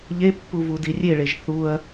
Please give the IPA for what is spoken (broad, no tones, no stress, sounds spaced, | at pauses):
ʎ e pː u v u d i rʲ e ɭ e ʒ θ u ɐ̯